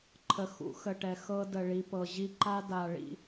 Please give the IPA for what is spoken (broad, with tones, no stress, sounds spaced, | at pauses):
ǃʰ ə˨ x ṵ˦ x ə˨ ʈ ɛ˨ x ɤ˦ d ə˨ ɭ i˨ p ɤ˨ ʑ i˦ ǃ a˦ d a˨ ɭ ḭ˦